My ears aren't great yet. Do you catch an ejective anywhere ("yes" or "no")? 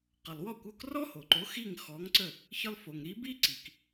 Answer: no